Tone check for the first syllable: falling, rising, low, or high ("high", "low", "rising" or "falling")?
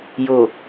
low